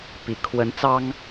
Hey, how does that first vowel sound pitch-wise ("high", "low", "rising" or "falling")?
low